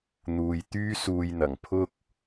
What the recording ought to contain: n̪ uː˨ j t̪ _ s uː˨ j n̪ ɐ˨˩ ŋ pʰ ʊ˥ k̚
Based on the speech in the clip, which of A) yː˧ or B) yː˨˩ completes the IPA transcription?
A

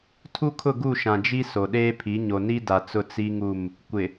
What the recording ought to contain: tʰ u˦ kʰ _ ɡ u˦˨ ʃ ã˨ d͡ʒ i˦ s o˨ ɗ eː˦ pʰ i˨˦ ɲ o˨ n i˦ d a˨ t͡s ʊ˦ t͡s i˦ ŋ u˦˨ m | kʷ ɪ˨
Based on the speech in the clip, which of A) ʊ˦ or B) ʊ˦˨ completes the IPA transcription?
B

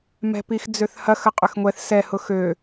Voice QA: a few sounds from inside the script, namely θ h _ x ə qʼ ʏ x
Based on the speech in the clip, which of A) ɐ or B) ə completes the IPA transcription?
A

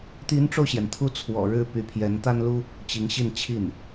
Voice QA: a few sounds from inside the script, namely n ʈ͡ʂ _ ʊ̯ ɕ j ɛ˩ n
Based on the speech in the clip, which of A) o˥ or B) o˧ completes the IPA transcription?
B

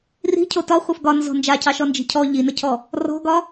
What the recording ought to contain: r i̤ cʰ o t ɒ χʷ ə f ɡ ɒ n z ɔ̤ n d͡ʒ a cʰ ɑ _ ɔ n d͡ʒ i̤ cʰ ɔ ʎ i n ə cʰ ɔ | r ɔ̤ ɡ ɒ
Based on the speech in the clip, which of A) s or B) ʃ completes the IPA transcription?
B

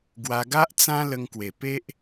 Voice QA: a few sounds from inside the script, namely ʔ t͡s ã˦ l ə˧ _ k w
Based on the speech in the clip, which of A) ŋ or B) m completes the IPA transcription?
A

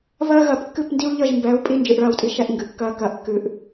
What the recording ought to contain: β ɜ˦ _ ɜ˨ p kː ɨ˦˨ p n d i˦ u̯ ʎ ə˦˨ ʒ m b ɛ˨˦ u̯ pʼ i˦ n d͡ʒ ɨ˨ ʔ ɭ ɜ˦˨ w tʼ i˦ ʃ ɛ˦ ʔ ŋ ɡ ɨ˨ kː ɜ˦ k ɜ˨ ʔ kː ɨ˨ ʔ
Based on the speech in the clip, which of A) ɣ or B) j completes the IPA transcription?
A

